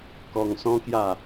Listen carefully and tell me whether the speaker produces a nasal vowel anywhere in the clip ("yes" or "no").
yes